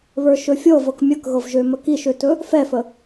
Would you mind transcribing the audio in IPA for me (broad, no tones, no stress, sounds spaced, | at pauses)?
β ə˞ ʃ ɵ fʲ ɤ v ɤ k mʲ ə k ɣ ɤ v ʒ ø m ə k i ʃ ø t ɵ | f ɛ f ə